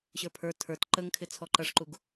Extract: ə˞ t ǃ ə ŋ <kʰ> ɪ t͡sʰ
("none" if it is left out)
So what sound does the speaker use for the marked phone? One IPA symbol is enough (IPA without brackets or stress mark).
kʰ